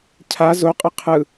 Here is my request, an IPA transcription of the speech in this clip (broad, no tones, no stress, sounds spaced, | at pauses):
cʰ a z o qʼ ɯ qʰ ɯ